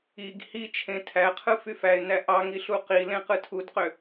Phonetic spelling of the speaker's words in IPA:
i ɡ h i t͡ʃʰ ẽ tʰ æ qʰ ɯ f y f æ ɪ̯ n æ ʔ ɑ ŋ i ɬ u q i l ẽ q ɯ tʰ u d q ø

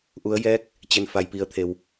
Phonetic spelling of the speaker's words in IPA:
ʔ u˩˧ ə̯ j ɛː˧˥ k̚ | t͡ɕ e˩ n f a˩ j p i˩˧ ə̯ t̪ʰ e˩ w

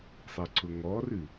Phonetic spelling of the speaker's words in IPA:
sˤ ɐ ǀ ʊ ŋ ɔ r ʉ

